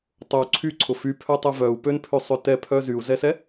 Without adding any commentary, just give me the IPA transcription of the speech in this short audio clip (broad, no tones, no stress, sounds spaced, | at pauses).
tˤ o ǀʰ y ǀʰ ʊ f y pʰ œ tˤ ɛ v œ u̯ p ø n pʰ ø sˤ ʏ t ɛ pʰ œ z y u̯ z ɛ s ɛ